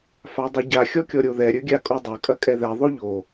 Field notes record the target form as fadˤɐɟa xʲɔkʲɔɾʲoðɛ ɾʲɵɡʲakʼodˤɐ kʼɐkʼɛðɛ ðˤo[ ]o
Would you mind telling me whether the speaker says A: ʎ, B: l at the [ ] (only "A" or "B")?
A